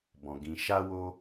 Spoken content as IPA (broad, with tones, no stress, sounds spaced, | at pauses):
b ɔ̃˨ ɡ ĩ˨ ʃ a˧ w o˧